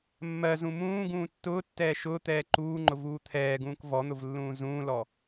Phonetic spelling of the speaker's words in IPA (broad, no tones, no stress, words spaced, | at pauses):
mːɜzũ mũː ɡũːtːʊːtːɛː ʃʊː t̪ɛːǃuːŋ͡ǃʊ vuːt̪ʰɛːɡũːk vɔn̪ʊv lːũːzũːlɔ